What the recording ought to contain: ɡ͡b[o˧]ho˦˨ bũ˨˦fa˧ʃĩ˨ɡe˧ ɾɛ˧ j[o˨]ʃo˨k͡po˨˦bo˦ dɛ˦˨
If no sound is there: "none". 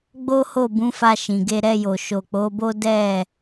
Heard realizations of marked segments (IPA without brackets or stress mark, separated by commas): o˦, o˨